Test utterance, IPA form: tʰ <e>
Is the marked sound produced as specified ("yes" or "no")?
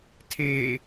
yes